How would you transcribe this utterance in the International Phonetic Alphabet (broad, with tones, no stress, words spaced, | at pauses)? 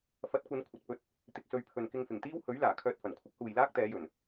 fɐ˨˥t̚kʷɐ˨˧n kʷʰɐ˨t̚pɵ˧t̚ | t̪ɪ˨k̚sɵ˧ɥpʰɵ˨n kɪ˧ŋfɪ˨˩ŋt̪iː˥whɵ˨˥ɥ laː˨˩ kʰœː˧t̚fɐ˨˩nkʷʰɪ˥k̚ huː˨jlaː˥k̚t̪ɛː˨˧jɵ˨˩n